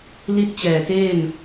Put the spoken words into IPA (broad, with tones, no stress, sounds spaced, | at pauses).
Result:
l i˥˩ t̚ t͡ɕ ɛː˨˩ t eː˥˩ m